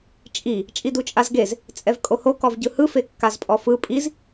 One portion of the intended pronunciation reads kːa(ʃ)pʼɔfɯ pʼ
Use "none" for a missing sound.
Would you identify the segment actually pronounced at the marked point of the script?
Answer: z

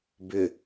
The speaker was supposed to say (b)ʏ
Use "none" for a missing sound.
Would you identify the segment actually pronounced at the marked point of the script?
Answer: b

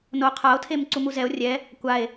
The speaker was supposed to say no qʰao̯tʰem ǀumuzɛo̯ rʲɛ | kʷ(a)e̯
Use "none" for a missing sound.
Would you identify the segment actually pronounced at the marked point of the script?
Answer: a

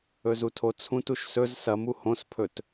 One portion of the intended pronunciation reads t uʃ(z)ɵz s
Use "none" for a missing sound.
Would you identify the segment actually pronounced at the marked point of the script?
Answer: s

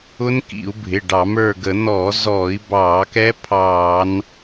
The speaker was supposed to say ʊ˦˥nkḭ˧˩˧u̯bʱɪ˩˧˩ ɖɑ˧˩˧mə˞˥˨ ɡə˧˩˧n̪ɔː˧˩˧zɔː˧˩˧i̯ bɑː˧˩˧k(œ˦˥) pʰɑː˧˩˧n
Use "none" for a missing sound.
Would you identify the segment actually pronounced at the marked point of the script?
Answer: ɛ˦˥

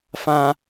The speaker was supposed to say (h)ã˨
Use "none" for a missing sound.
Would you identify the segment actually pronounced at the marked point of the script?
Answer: f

